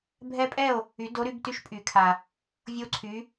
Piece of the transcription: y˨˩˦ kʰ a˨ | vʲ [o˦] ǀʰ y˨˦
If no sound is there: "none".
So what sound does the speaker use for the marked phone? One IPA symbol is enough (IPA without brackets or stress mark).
o˦